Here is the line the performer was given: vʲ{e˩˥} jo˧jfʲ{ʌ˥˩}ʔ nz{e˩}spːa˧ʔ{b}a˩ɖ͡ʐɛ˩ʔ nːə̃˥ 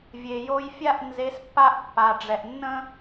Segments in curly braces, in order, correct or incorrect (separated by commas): incorrect, incorrect, incorrect, incorrect